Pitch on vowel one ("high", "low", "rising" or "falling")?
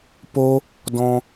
high